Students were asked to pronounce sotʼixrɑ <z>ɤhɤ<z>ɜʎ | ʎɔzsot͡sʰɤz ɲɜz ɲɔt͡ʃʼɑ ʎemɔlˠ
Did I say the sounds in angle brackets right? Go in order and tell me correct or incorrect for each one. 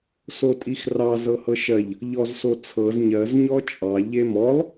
correct, incorrect: ʃ

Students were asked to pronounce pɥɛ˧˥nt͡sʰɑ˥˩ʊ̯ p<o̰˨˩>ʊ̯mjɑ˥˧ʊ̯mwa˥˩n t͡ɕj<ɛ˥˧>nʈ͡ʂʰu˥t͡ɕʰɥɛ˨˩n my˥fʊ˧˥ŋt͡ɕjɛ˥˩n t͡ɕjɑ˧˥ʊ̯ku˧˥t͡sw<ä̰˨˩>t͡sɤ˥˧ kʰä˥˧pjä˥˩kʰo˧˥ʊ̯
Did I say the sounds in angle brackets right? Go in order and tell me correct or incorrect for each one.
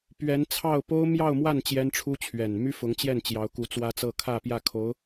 incorrect: o˥, incorrect: ɛ˥, incorrect: ä˥

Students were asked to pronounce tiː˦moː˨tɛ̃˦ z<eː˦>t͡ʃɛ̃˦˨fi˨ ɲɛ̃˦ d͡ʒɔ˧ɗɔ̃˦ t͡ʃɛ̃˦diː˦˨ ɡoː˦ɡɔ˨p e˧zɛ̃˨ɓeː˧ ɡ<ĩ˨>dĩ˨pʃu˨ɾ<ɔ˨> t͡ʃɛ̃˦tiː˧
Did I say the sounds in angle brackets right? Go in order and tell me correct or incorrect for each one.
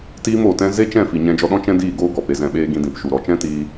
incorrect: e˦, incorrect: ĩ˧, correct

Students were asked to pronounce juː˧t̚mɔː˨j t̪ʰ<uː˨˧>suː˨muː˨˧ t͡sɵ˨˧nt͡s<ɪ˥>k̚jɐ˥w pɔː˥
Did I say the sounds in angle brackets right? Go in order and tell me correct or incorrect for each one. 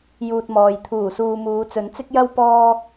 incorrect: uː˨˩, correct

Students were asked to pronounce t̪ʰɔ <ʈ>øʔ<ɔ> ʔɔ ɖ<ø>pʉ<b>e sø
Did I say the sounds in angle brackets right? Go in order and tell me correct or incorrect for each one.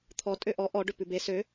incorrect: tʼ, correct, correct, correct

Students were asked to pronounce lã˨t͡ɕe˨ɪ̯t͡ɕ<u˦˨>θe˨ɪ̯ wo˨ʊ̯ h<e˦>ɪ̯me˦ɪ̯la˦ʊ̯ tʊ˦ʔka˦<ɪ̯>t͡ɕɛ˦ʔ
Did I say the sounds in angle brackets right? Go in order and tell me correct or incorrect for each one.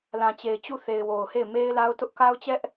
correct, incorrect: e˦˨, incorrect: ʊ̯

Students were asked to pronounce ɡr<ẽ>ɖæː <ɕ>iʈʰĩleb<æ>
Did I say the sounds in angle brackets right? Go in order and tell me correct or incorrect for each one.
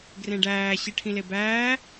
correct, correct, incorrect: æː

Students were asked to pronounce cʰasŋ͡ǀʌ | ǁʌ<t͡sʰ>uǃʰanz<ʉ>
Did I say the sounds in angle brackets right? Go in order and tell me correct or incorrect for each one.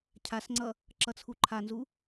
correct, incorrect: u

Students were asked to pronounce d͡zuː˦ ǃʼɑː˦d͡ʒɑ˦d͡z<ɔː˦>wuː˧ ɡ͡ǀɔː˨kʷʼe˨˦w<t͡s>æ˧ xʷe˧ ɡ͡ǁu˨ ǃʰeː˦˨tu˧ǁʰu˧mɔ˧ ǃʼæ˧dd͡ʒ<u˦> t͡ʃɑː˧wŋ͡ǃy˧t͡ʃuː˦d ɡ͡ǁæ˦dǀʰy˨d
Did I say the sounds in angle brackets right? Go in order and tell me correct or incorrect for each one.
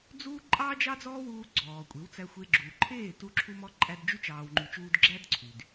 correct, correct, incorrect: y˦

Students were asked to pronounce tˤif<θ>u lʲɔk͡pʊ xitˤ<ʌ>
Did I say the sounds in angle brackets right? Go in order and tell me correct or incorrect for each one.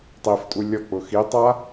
incorrect: tʼ, incorrect: a

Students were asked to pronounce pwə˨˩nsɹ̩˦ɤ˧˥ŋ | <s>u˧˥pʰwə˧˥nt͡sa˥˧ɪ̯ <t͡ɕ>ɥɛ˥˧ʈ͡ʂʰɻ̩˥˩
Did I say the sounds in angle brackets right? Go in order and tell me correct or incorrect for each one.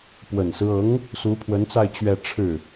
correct, correct

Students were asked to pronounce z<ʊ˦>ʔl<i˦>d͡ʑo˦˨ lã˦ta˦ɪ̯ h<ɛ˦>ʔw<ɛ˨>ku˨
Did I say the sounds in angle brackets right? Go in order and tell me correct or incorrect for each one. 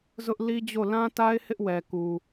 correct, correct, incorrect: ɪ˦, correct

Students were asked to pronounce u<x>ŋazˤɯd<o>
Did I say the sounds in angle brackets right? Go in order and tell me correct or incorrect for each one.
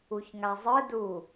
incorrect: ç, incorrect: u

